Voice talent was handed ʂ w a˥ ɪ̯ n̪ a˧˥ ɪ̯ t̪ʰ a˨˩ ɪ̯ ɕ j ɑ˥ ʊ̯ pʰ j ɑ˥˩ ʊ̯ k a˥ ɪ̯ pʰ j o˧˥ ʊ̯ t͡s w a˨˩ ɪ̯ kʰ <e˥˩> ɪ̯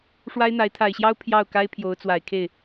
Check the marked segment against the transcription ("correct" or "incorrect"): correct